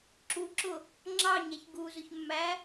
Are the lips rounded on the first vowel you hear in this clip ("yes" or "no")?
yes